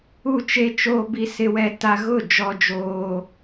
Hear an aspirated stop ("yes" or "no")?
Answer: no